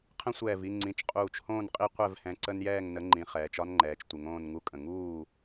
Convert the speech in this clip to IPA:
qʰə̃˦sʷɛː˧˩vi˥˨ŋ͡ǀĩ˩˧˩t͡ʃ qʼuː˧˩t͡ʃhõː˥˨nqʼi˦ qʷɛ˥˨vhɛ̃˨˥ ǀə˦njɛː˥˨ŋ nə˨˥ŋ͡ǃĩ˩˧ χɛː˩˧t͡ʃɒ˦nŋ͡ǃɛː˩˧t͡ʃtʷɪ˩˧ŋ õː˥˨nŋu˦kʼə̃˧˩ ŋuː˥˨

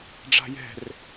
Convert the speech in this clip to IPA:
ɖ͡ʐa̤jɛ̤r

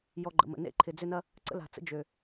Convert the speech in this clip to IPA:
jɔ˨ɡ͡ǃə̰˨mə̰˩ nḛ˥ǃʰɪ˨ d͡zʏ˦nɐ˦ | ǀə̰˥ la̤˨t͡sə̰˥ d͡ʒø˩

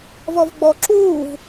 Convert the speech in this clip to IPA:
vɔvɡ͡bɔ ǁuːv

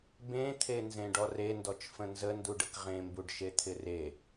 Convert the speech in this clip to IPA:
bẽt̪ʰe nzẽɖɔrendɔt͡ʃ fə̃nzənduɖ əkʁẽmbuɖʃe t̪ʰɪre

